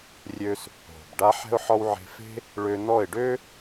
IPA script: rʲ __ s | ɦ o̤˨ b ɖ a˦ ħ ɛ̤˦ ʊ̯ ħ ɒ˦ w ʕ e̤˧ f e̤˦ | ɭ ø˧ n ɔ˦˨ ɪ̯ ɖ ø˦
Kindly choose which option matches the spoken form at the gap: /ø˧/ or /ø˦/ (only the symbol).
ø˧